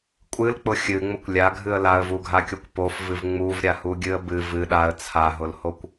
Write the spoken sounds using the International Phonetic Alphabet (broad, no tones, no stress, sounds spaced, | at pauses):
kʷʼ ɨ l k͡p ʊ xʲ ɨ ŋ͡m ʊ kʷ lʲ a ɡʱ ɨ ə̯ l a ə̯ v u ɡʱ a kʲ o kʷ p o f v ɨ v ŋ͡m u v ɾʲ a h u ɡʲ ɨ ə̯ b ɨ v ɨ ɗ a ə̯ t͡sʰ a ɦ ʊ l h o kʷ